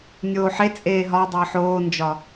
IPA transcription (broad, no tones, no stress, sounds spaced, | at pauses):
nʲ oː ħ e t͡sʼ eː ɦ ɒ dˤ əː ħ oː n d͡ʒ ɒ